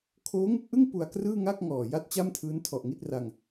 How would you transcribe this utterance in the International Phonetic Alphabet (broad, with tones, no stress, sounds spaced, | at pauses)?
kʰ oː˦˥ ŋ u˥˩ k̚ ʔ ɯ˥˩ ŋ p u˧ a̯ k r ɯː˥˩ ŋ a˥˩ k̚ ŋ ɔː˨˩ j a˥˩ t̚ t͡ɕ a˥˩ m tʰ ɯː˦˥ n tʰ ɔ˨˩ ʔ ŋ i˥˩ t̚ r a˧ ŋ